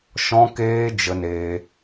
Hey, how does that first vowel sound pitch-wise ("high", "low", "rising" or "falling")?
high